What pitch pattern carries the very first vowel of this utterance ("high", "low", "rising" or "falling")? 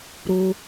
high